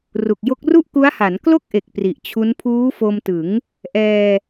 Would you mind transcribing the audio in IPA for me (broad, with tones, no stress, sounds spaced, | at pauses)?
r u˨˩ k̚ j o˦˥ k̚ r u˥˩ ʔ k u˦˥ a̯ h a˩˦ n k l o˥˩ k̚ ʔ e˨˩ k̚ p r i˨˩ ʔ t͡ɕʰ u˦˥ n pʰ uː˦˥ f o˧ m t ɯ˩˦ ŋ | ʔ ɛː˧